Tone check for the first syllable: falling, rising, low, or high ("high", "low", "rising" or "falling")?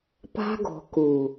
high